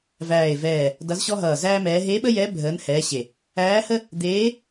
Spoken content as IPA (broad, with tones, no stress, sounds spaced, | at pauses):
v æː˧˩ e̯ v ɛː˧˩ | d ʌ˧˥ z ɕ ɔ˥ ɦ ʌː˧˩ z æː˥ m ɛː˧˥ ɦ e˧˥ ɓ ə˥ j ɛ˧˥ bʱ əː˧˥ n h ɛː˧˥ ɕ e˧˩ | æː˧˥ h ə˥ | d̪ eː˧˥